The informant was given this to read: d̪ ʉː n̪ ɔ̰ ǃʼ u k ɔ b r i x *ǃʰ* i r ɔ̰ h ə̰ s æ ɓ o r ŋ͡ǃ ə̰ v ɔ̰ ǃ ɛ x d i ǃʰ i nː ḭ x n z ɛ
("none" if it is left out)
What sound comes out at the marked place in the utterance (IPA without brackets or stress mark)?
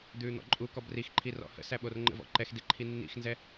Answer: ǃʰ